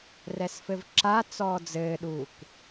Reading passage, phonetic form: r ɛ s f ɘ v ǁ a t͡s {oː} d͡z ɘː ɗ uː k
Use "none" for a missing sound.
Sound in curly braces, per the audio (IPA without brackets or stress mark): ɔː